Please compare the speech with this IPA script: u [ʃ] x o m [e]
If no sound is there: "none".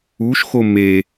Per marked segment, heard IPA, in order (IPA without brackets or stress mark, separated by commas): ʃ, e